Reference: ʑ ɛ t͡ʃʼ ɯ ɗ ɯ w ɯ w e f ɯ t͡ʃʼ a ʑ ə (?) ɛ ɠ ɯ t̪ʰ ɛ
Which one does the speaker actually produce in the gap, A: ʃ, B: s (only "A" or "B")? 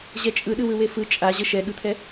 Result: A